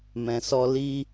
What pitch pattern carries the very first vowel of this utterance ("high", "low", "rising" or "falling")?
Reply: low